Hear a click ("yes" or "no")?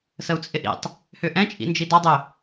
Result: no